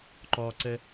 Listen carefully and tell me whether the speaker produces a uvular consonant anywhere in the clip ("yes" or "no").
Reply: no